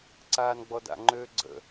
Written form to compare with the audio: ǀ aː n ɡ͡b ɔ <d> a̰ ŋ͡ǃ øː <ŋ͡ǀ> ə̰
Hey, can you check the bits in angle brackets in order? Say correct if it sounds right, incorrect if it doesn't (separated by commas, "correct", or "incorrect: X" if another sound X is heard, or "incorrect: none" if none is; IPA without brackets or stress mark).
correct, incorrect: ɡ͡ǀ